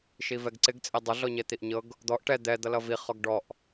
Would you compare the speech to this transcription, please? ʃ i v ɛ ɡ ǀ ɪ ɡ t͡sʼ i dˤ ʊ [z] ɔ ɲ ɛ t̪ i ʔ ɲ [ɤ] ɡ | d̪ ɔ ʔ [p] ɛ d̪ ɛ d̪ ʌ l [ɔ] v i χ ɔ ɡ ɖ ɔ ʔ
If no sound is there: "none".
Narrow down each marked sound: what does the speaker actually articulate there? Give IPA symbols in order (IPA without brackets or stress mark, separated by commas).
ɮ, ɤ, ʈ, ʌ